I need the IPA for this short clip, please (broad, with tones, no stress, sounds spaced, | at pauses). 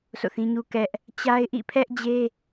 s o̰˦˨ θ ĩ˦ ɲ u˦ k ɛ˦ ʔ | t͡ɕ a˦ ɪ̯ ʔ ḭ˦˨ pʰ ɛ˦ ʔ d͡ʑ e˦